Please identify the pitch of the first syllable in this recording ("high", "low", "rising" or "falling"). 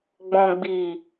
low